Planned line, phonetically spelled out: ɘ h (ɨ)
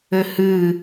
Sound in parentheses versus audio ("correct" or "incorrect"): correct